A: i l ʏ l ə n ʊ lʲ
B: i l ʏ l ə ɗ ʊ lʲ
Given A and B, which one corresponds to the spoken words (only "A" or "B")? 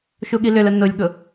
A